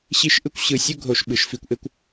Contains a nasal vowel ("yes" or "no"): no